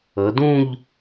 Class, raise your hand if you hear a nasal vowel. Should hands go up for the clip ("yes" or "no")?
yes